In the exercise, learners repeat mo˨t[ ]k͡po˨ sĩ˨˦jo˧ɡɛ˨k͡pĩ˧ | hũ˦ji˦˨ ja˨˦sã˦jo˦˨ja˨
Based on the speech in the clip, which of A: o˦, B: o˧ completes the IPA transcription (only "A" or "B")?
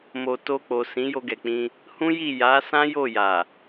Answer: B